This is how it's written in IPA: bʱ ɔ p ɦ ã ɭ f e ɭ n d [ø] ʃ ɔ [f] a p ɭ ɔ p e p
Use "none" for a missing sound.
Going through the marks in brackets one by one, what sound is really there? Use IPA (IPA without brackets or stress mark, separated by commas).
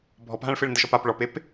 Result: ə, p